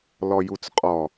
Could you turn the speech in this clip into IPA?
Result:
l ɔ j u t͡s qʼ ɔ

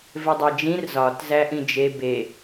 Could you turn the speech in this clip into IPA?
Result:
v e dˤ æ d͡ʒ ĩ r z ɒ t z æ ʔ ĩ d͡ʒ e b e

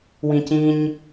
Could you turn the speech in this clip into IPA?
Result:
w ĩ c ĩ ɲ

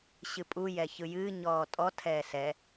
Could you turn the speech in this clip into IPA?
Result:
ɕ ɨ pʼ u j ɛː ç ɯ j ɨː ɲ ɔː tʼ ɔ tʰ ɛː s ɛ

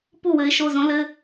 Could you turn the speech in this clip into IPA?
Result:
p u˥˩ w ɘ˨˦ ɪ̯ ʃ o˩˧˩ z õ˨˦ l ɘ˩˧˩

